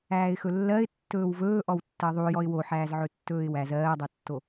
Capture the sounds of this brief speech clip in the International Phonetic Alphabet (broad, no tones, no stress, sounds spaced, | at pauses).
æː ɪ̯ x ɵ lː ɜ ɪ̯ tː ɵː w v ɵː ʔ ɔ w tː ɜ ðˤ u j ɔ ɪ̯ w o ħ æː z ʕ ɵ tː ɵː ɪ̯ w æ z ɜː dˤ o tː o